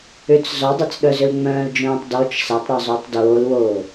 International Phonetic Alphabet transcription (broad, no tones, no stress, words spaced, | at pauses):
ʏt͡s zɔdˤɐt͡sɗœzʏl ŋ͡mœ̃ːld͡ʒœ̃ːtˤ dɔt͡ʃ sɐtˤɾœzˤʏːtˤ doːlwoː